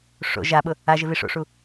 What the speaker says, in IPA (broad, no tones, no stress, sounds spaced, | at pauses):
ʂ o̰ ʒ a ɓ ʊ | a ʒ ɪ v i ʂ o̰ ʂ u